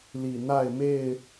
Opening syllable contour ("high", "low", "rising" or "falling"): low